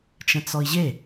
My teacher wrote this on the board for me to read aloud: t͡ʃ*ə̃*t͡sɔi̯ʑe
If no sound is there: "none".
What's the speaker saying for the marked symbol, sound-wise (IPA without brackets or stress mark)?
ə̃